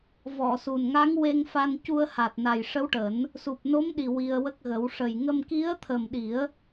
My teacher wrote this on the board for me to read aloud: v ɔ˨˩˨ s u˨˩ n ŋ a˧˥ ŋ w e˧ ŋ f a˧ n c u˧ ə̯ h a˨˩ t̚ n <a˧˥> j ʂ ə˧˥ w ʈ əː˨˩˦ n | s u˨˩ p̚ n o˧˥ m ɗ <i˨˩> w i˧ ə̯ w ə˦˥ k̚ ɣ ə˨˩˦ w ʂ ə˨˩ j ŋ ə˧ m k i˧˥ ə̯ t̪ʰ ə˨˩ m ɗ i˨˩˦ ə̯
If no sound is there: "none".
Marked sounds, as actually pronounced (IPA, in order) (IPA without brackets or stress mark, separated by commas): a˨˩, i˨˩